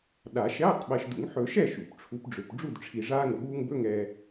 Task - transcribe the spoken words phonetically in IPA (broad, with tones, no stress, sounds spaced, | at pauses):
ɗ aː˨˩˦ ʃ ɛː˧˥˧ tˤ ɓ ɛ˨ ʃ d ṵ˨˩˦ ŋ ħ ɵ˨˩˦ ʃ ɛ˥˩ ʃ ṵ˨˩˦ p ʈ͡ʂʰ u˨˦ p ɖ͡ʐ ø˨ p ɖ͡ʐ u˥˩ d ʈ͡ʂʰ i˨ ʐ aː˥ ŋ ə˨ ɠ uː˥ ŋ b ɵ˧˥˧ ŋ ɛː˨